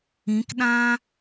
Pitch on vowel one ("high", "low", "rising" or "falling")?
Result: rising